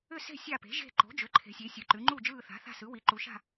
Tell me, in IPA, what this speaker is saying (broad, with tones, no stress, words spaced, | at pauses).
ʏ˦˨se̤˦˨ sʲa˦˨pe̤˩˥ʒe̤˦˨ ǃo̤˩˥d͡ʒʏ˩˥ ǃʰe̤˩˧sʲe˩˧ sʲɯ˩˧ǃʉ˩˧ŋ͡ǃu˦˨ d͡ʒɯː˦˨θa̤˩˥θa̤˦˨sɯ˩˥ wi˩˧ǃu˩˧ʃa̤˦˨